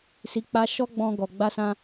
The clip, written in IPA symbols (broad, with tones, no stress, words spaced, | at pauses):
si˧k͡pa˦ ʃɔ˦ɡ͡bɔ̃˧ ɡɔ˨ ɡ͡ba˧sã˧